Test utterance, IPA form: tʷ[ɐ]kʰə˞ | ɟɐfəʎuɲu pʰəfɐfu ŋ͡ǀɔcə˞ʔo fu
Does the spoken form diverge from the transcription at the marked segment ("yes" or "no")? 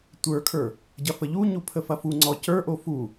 yes